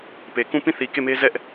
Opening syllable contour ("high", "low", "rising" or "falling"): low